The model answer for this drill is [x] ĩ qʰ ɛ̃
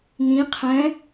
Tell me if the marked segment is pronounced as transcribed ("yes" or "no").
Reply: no